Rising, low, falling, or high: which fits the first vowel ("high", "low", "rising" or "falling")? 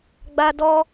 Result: high